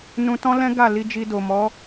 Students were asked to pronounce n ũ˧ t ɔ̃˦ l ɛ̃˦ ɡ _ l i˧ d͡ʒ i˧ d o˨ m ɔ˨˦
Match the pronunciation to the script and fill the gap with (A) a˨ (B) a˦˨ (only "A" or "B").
B